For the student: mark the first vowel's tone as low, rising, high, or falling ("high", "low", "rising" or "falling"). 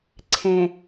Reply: low